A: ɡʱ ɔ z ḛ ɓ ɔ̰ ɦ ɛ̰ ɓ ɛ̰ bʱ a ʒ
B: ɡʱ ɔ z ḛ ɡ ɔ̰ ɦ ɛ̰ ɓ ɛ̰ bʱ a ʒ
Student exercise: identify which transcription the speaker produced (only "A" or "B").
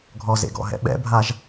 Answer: B